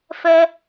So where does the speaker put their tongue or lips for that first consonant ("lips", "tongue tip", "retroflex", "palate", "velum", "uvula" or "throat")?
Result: lips